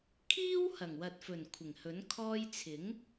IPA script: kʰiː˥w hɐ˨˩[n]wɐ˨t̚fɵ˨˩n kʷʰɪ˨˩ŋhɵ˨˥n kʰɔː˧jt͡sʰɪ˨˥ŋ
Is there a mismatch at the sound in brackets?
yes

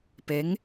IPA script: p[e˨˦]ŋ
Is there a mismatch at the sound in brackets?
no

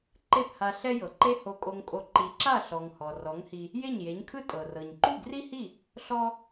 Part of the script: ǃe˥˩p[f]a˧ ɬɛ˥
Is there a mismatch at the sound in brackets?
yes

